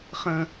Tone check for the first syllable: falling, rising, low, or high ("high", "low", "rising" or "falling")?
high